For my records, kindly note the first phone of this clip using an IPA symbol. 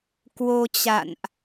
k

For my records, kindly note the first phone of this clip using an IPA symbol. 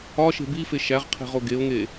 ɒ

